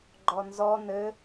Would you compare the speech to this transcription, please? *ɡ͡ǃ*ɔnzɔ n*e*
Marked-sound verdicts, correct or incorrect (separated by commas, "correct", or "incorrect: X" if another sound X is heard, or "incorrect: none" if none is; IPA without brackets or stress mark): correct, incorrect: ɘ